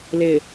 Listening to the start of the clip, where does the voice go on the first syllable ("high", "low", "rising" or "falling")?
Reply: low